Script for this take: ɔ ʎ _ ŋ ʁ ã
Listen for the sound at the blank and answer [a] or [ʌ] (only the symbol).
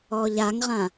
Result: a